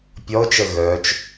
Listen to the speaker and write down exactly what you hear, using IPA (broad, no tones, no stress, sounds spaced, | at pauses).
pʲ ɔ ʊ̯ t͡ʃ ə ɣ œ t͡ʃ